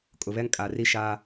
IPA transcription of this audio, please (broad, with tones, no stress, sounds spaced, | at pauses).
kʼ ʊ˨ β ɛ˦ ŋ kʼ a˨ r i˦ ʃ aː˦